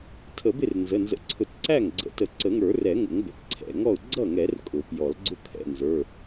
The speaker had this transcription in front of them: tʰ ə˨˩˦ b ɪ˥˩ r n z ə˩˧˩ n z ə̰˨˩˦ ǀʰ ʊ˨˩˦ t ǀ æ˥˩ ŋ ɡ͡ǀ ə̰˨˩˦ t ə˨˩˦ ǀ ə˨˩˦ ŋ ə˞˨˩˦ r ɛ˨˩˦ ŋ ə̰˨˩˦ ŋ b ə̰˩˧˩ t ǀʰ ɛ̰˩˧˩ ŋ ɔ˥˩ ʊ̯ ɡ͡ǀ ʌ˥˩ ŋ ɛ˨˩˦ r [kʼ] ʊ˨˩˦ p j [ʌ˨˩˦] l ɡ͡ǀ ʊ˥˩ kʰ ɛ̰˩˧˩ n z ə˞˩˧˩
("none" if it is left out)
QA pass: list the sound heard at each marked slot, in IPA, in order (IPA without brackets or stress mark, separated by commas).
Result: kʼ, ɔ˨˩˦